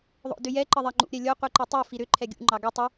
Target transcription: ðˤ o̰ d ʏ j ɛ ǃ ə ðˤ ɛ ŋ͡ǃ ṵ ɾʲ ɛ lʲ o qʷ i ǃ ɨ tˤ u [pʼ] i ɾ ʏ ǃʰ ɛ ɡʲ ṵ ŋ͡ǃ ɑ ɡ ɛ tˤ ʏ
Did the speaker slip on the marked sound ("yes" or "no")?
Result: yes